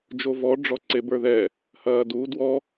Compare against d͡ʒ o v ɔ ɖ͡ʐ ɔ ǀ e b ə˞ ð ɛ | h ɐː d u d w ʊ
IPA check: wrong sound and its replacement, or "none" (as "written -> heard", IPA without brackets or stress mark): ʊ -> ɔ